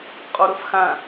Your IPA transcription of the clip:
qʼɔɾɤfxã

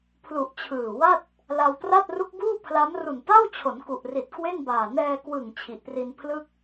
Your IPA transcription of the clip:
pʰlu˨˩ʔ t͡ɕʰɯː˨˩wa˥˩t̚ | la˧wtra˥˩t̚ ru˦˥k̚buː˥˩pʰla˦˥m ru˨˩nta˥˩wt͡ɕʰo˩˦n ku˨˩ʔri˨˩t̚ kwe˥˩nbaː˨˩ nɛː˧kwɯ˨˩ŋ t͡ɕʰi˨˩ʔpri˧npʰlɯ˥˩k̚

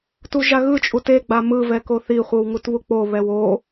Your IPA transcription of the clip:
tuʒaɣɯt͡ʃʼut eɡ͡ba mɯvɛ koθiχʷɯw ŋutβuk͡poβɛw o

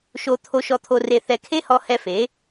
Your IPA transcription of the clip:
ʃo˧ t̪ʰo˧ʃɔ˧ t̪ʰo˧re˧θɛ˧ kʰe˦hɔ˧hɛ˧ fe˨˦

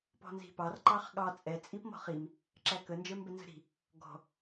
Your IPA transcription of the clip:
pɔ̤nzi̤pɑr ǃɑχɠɑ t͡sʼɛ t͡sʼipmɔ̤χim | ǁækə nd͡ʒə˞mbɛnzə̤ɾi̤ | ɡɔ̤

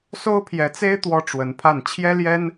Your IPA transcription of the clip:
so˥ʊ̯pʰjɛ˧˥t͡se˥ɪ̯ t̪wɔ˥ʈ͡ʂwə˧˥npʰa˥˩n t͡ɕʰjɛ˥ljɛ˥n

